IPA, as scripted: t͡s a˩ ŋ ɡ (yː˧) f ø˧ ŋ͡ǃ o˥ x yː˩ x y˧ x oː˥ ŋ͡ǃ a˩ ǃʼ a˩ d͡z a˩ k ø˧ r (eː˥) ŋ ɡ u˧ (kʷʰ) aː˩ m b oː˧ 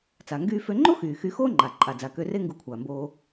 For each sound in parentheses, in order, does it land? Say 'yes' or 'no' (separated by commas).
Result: yes, no, yes